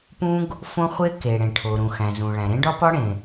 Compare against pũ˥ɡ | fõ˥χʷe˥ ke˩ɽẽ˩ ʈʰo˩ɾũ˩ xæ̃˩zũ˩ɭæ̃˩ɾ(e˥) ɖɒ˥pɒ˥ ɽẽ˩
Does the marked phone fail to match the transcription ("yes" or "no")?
yes